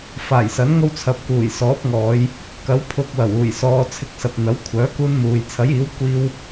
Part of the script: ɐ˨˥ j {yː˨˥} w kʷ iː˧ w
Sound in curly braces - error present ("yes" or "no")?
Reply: yes